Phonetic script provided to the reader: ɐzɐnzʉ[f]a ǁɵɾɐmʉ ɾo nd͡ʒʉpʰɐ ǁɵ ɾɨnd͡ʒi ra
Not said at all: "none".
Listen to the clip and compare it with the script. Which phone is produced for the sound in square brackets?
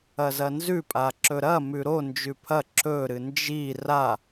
pʼ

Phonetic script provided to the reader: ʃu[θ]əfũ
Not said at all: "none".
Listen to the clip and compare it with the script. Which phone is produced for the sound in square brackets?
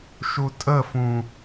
tʼ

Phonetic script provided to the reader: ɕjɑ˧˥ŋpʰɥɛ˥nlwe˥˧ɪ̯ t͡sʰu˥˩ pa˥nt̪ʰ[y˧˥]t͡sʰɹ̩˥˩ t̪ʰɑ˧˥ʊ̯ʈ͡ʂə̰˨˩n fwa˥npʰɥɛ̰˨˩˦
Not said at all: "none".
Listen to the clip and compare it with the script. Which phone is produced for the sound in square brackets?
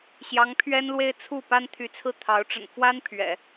y˧˥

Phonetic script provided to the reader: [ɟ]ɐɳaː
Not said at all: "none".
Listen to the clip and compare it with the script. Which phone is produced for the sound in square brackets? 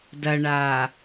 d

